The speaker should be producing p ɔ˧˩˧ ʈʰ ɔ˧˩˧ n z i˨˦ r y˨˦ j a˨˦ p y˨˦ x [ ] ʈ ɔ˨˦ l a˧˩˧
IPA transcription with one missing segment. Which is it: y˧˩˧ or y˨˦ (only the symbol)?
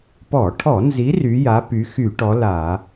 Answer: y˧˩˧